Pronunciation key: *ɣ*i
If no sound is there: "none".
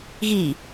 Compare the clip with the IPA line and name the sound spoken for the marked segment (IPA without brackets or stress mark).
ɣ